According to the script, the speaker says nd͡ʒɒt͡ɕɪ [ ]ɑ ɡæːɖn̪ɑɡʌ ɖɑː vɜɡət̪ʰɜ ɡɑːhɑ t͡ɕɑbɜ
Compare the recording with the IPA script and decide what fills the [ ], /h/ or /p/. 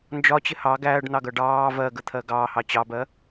h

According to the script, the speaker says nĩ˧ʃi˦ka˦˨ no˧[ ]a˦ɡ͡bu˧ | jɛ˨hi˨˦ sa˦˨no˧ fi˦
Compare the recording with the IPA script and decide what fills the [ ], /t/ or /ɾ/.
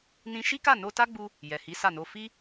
t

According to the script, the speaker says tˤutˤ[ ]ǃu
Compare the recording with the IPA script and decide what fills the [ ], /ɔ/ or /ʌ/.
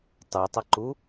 ʌ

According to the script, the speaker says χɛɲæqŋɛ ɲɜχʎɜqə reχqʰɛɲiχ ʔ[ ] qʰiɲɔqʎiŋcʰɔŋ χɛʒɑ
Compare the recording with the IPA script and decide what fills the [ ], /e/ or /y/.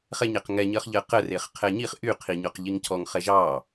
y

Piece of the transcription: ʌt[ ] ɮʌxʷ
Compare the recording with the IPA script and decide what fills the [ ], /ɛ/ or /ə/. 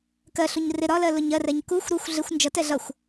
ɛ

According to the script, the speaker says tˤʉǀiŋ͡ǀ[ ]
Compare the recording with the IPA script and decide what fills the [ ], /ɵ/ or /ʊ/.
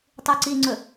ɵ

